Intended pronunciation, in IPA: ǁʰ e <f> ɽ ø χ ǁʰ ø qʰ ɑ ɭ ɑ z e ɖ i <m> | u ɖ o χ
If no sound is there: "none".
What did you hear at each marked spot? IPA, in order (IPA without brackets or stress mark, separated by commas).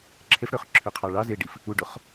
f, f